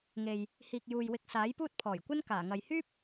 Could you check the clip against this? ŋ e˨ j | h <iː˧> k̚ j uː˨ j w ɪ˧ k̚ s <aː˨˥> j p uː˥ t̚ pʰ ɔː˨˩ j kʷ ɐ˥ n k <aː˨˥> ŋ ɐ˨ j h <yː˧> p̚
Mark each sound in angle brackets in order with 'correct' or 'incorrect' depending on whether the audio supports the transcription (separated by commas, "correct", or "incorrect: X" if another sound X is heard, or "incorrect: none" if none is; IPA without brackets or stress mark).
incorrect: iː˨, correct, incorrect: aː˨˩, incorrect: yː˥